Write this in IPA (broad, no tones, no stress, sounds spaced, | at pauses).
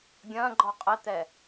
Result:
ɡʲ ɐ̃ː ɡ͡ǃ ɔ qʼ ɘ t̪ ɛ